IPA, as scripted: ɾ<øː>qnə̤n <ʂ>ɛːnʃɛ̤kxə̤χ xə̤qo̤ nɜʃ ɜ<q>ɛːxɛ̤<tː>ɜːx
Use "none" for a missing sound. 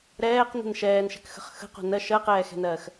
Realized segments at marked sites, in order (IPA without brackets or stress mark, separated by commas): ɛː, ʃ, q, n